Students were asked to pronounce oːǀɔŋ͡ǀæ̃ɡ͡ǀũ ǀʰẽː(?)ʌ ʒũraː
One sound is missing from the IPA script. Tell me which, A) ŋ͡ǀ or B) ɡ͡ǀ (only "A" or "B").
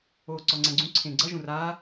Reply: B